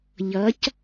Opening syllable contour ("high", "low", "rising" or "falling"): rising